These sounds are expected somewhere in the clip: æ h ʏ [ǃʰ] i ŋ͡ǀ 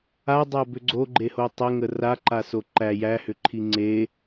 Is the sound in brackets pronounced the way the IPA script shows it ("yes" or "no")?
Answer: yes